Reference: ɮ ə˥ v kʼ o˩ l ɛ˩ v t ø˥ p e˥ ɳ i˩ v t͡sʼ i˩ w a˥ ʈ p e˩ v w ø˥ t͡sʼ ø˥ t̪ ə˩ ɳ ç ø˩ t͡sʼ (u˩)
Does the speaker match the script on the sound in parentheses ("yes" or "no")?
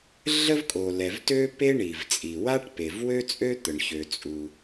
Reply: yes